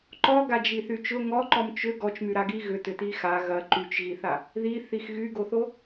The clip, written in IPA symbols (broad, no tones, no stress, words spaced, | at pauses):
ǃɔɡad͡ʒiθy t͡ʃʊ ŋɔǃɔm t͡ʃʏ ɡɔt͡ʃmyɾaɡi ɣʏtʏti xa ɣɐ ǃyt͡ʃɣiθa | ðiθix ɣyɡoθo